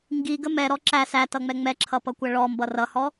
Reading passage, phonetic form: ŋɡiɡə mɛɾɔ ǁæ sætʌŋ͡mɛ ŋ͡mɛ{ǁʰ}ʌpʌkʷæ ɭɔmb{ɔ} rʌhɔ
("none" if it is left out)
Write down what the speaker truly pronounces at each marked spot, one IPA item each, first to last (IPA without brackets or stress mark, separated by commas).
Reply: ǁʰ, ʌ